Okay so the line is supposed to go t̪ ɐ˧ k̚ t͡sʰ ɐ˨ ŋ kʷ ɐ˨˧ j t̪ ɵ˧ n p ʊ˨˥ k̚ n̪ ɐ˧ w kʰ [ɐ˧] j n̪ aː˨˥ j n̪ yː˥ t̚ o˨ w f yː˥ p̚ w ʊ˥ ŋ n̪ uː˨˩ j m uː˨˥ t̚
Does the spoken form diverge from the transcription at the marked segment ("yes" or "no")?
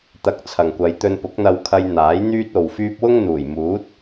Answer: no